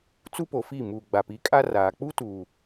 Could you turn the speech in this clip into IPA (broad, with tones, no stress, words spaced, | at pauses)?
t͡su˦po˨fi˦˨ mu˨ ɡ͡ba˨pi˨˦kʼa˦raː˨ k͡pu˦tuː˨